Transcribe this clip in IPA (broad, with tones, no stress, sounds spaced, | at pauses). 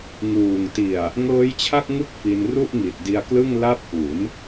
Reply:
ŋ uː˨˩ ŋ t i˨˩ a̯ | ŋ ɤː˦˥ j t͡ɕʰ a˥˩ k̚ ŋ ɯ˥˩ k̚ f i˧ n r u˥˩ ʔ ŋ i˨˩ t̚ d i˧ a̯ k l ɯ˥˩ ŋ l a˥˩ p̚ ʔ u˩˦ n